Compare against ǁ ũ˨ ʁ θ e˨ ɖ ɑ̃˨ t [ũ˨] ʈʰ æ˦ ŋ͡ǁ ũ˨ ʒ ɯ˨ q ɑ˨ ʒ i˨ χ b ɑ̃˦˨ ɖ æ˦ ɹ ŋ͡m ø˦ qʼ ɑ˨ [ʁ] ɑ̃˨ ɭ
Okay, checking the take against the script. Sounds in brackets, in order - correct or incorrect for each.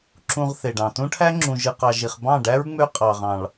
incorrect: ũ˦, correct

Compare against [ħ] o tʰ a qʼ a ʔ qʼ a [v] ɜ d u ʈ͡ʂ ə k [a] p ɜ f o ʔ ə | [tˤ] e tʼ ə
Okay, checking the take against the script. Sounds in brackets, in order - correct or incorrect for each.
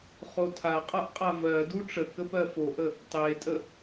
incorrect: χ, correct, incorrect: ə, correct

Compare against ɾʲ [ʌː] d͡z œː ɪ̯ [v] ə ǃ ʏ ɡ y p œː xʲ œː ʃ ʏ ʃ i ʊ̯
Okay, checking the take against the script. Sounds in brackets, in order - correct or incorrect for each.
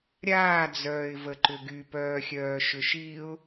incorrect: aː, correct

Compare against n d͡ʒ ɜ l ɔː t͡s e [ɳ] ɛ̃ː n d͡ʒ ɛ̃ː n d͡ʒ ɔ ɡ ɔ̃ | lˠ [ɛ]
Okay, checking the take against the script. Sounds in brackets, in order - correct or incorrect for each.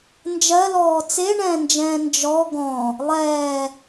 correct, incorrect: ɛː

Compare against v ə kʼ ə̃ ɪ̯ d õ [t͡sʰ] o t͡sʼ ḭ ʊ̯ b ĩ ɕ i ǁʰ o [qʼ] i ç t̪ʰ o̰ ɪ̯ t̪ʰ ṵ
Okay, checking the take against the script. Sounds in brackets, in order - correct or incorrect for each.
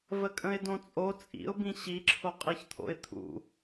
incorrect: t͡sʼ, correct

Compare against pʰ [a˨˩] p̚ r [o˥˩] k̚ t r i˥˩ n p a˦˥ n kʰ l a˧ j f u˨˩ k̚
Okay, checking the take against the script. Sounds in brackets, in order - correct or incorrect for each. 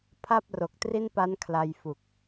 incorrect: a˥˩, incorrect: o˨˩

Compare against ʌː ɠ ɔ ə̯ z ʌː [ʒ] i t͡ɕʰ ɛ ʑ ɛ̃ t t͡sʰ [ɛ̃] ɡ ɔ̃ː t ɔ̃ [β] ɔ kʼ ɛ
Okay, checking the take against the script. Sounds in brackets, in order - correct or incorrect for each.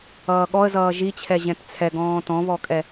correct, incorrect: ɛ, correct

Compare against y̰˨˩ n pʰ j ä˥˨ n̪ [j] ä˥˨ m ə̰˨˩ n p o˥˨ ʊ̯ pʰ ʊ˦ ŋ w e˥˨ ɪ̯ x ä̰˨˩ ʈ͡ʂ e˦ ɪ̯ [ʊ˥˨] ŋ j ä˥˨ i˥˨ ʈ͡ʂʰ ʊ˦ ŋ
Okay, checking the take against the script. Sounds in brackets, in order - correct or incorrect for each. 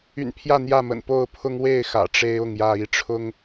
correct, correct

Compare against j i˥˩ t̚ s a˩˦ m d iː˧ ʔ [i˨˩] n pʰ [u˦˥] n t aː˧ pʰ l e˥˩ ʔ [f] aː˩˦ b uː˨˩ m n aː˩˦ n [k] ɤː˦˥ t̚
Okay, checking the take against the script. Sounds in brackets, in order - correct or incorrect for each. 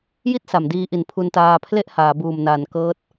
correct, incorrect: u˧, incorrect: h, correct

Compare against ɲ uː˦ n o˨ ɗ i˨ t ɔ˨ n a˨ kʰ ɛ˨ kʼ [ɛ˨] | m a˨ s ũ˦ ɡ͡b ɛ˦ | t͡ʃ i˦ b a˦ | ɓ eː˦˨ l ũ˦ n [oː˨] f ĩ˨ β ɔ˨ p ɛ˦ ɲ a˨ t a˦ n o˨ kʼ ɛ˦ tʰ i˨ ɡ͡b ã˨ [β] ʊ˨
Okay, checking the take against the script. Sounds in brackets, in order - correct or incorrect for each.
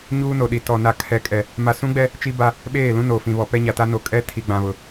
correct, correct, correct

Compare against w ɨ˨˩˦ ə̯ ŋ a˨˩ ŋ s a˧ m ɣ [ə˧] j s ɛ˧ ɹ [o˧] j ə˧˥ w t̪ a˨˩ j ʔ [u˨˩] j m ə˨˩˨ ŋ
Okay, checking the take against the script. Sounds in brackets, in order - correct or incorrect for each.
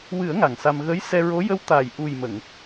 incorrect: ə˧˥, incorrect: o˧˥, correct

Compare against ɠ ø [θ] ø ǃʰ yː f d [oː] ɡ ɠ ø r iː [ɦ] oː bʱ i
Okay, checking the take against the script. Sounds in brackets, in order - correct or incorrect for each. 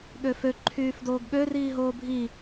incorrect: f, correct, correct

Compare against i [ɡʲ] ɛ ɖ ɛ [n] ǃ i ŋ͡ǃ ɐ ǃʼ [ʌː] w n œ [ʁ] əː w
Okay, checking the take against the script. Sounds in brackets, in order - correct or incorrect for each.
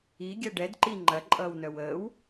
correct, incorrect: d, correct, incorrect: w

